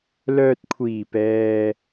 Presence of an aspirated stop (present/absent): present